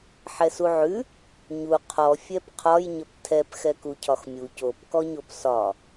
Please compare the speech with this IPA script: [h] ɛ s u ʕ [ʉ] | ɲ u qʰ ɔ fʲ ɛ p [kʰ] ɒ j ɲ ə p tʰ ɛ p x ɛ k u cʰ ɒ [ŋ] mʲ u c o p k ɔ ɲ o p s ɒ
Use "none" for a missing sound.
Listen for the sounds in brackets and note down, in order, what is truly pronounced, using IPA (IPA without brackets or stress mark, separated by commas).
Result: ħ, ʉ, qʰ, x